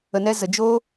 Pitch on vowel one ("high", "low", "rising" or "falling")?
low